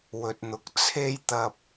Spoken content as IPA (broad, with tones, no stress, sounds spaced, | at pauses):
w ɵ˨ t̚ n̪ ʊ˨ k̚ t͡sʰ e˥ j t̪ ɐ˧ p̚